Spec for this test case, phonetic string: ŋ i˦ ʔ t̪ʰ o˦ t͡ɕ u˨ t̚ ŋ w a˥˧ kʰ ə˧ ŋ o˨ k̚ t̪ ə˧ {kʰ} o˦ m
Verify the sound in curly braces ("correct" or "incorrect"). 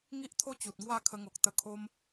correct